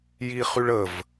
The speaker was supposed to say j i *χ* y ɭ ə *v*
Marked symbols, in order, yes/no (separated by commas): yes, yes